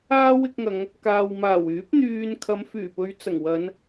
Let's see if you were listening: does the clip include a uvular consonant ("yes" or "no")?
no